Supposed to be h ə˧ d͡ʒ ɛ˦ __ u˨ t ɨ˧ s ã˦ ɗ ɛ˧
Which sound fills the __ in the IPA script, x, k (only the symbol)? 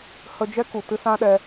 k